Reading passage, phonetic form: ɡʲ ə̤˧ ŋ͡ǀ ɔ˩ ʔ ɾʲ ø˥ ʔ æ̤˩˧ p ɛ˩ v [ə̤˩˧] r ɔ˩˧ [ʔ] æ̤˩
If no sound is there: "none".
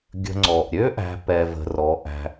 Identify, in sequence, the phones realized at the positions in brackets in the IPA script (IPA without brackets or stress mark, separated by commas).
ə̤˩, ʔ